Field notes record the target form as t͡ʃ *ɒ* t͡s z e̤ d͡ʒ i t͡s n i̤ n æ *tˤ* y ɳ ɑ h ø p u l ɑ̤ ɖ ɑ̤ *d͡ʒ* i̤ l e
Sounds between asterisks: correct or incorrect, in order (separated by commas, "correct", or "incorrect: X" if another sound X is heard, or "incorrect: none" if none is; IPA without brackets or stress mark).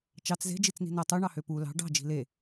incorrect: ɑ, correct, correct